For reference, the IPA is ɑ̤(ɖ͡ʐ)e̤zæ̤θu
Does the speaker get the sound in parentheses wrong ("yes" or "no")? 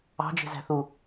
yes